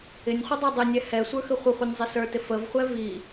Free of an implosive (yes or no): yes